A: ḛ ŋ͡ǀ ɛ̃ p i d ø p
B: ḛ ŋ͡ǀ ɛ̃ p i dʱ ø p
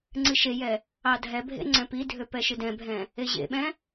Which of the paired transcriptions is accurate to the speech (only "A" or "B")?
B